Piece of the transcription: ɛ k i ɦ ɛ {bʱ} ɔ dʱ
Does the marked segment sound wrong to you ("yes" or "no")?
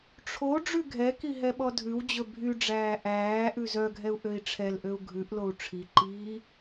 yes